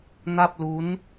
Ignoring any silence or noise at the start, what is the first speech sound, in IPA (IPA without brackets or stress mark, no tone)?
n